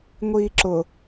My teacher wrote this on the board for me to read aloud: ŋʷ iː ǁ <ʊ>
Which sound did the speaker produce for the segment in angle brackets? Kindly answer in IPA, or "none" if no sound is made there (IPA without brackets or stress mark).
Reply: ʊ